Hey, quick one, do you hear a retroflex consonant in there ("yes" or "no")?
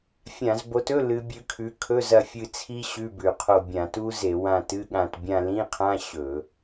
no